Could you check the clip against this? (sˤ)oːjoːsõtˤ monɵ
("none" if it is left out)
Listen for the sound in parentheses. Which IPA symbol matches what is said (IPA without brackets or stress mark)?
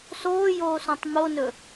s